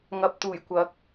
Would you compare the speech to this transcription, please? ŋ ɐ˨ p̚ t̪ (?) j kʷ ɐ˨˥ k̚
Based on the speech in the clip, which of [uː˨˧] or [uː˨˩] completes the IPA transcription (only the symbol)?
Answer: uː˨˩